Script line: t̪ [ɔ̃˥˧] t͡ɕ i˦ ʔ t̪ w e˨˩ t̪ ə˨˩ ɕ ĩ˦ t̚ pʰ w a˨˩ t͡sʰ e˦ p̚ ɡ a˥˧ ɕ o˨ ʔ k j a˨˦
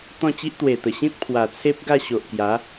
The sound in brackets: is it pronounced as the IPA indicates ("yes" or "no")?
yes